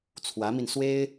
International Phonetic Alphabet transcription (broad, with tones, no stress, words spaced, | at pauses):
t͡sʰwä˧˥mi˧n swe˥ɪ̯